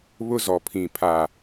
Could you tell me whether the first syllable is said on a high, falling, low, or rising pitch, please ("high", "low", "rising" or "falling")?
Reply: high